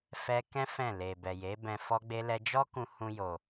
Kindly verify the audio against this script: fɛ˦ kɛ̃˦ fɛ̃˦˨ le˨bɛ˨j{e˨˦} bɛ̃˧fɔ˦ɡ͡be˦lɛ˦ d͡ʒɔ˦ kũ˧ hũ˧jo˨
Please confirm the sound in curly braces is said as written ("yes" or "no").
yes